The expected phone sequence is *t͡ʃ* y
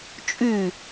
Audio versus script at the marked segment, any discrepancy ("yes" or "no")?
yes